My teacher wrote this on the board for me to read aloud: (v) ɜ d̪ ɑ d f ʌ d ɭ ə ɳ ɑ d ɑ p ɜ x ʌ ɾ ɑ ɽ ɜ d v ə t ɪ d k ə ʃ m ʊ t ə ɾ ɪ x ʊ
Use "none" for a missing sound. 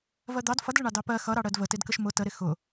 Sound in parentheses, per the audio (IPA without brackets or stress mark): v